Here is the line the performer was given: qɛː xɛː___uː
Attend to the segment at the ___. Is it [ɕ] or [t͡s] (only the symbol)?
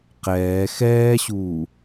ɕ